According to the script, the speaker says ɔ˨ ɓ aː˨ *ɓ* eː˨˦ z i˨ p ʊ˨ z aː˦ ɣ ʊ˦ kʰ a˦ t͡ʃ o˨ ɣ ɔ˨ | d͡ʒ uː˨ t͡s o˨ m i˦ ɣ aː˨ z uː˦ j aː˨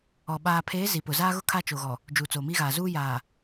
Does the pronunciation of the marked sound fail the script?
yes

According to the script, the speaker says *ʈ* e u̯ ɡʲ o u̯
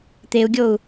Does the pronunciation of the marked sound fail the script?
yes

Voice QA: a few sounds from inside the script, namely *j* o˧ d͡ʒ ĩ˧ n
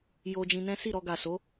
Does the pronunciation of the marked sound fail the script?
no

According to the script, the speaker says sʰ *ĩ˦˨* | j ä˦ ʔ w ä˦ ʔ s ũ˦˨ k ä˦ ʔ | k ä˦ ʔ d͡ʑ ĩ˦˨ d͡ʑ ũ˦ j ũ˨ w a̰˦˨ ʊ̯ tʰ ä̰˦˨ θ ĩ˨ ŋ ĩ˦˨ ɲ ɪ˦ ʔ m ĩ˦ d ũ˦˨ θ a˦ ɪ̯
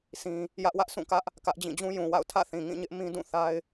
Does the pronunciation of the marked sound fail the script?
yes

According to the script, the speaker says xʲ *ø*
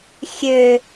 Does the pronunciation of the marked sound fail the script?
no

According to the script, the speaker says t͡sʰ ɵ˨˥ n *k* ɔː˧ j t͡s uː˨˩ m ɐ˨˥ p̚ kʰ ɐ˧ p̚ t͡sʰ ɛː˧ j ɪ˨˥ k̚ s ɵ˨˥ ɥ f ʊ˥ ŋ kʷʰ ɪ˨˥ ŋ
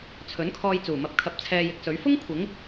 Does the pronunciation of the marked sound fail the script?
yes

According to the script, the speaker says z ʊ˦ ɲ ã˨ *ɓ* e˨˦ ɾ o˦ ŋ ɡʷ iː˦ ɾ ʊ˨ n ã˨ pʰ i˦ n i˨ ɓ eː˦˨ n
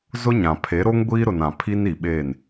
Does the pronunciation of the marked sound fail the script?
yes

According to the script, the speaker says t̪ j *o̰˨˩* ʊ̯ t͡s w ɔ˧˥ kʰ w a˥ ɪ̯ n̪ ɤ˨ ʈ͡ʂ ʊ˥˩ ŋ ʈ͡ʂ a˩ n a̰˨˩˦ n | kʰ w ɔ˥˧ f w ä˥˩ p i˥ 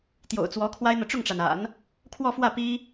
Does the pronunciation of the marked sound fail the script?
no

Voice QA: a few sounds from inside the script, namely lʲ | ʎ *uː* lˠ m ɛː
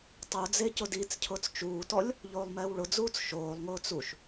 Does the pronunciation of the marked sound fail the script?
yes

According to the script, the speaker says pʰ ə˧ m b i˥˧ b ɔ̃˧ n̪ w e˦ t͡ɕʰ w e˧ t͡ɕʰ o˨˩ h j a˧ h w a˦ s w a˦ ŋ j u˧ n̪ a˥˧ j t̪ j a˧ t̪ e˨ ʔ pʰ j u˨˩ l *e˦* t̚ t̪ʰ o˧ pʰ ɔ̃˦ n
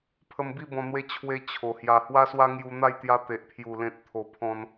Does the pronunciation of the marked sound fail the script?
yes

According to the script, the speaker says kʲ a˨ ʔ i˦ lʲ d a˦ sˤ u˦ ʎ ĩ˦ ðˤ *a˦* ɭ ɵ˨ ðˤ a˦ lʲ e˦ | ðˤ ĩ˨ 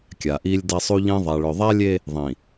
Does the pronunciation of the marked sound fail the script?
yes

